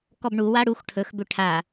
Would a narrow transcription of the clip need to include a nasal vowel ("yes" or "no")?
no